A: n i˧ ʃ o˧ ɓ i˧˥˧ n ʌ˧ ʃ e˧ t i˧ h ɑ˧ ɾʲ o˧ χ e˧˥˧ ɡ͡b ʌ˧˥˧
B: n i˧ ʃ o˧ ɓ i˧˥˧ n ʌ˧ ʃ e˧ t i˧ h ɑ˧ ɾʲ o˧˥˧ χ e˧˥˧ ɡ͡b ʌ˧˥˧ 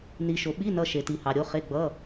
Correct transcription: B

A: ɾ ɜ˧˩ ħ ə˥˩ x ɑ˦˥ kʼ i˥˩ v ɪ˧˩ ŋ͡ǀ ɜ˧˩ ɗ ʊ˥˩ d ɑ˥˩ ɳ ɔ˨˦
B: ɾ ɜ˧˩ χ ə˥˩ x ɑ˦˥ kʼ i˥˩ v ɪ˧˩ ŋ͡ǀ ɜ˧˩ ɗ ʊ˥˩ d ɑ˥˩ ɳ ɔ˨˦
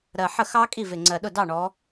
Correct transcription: A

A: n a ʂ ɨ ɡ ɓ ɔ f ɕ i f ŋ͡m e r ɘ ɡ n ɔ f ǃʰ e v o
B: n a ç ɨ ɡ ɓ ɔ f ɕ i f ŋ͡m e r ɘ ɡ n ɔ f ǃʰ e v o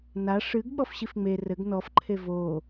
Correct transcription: A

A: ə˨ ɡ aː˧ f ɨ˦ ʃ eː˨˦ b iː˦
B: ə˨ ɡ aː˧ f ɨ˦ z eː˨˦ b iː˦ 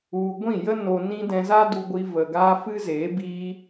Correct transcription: B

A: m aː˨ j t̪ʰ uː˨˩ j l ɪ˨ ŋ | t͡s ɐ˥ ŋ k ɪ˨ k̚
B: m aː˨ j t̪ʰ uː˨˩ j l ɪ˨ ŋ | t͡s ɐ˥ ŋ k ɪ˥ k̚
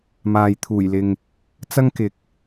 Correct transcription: A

